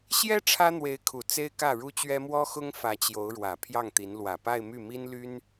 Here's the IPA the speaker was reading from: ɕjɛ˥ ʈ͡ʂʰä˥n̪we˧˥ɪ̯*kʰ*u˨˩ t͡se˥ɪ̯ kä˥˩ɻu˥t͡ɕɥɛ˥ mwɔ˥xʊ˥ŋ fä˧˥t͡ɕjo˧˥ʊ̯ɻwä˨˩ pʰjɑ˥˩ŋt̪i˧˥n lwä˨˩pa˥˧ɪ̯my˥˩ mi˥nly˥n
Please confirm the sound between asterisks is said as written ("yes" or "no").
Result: yes